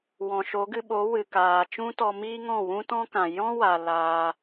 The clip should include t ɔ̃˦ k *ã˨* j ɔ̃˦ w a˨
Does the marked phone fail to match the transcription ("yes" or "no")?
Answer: no